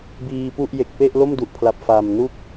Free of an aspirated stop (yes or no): no